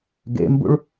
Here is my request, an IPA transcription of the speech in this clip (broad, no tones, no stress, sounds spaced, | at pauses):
ɡ ḛ m b ṵ ɭ